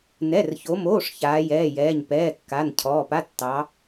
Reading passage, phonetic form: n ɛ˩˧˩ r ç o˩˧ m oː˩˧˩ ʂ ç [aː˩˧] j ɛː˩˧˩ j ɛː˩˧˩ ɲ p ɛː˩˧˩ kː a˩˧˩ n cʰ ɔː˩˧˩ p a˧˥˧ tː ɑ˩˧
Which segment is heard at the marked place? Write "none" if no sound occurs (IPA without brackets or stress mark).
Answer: aː˩˧